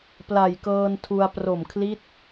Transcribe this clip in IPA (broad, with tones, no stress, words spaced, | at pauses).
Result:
pla˨˩jkɤː˧ntʰu˧a̯ pro˨˩mkʰli˦˥t̚